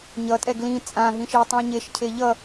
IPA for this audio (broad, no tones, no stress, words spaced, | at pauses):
ɲʌtʼɛ ɡlĩ t͡sʼãɦĩ ʃitˤũɐ̯ɲeʃcʰe ʎʌ